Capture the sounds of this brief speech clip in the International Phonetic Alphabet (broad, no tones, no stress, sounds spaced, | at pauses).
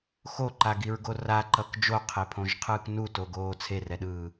x o ǃ a ɡ i ɹ ɡ o r a ǃ ʌ k d͡ʒ o qʰ e pʰ õ ʒ qʰ ɯː k n u t o ɡ oː t͡sʰ e r ɛ ɗ ɯː